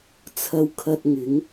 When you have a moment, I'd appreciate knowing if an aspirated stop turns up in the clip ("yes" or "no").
yes